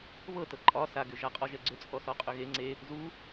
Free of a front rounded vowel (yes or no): no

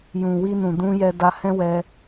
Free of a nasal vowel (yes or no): no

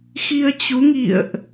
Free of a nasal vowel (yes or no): yes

